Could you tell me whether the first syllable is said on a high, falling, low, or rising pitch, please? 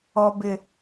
high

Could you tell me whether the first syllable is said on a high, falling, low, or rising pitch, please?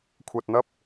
low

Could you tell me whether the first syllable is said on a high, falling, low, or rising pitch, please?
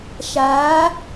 rising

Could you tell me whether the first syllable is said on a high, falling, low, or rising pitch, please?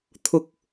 low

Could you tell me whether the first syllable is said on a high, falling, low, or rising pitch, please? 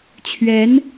rising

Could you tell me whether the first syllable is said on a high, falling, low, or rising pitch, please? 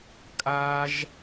high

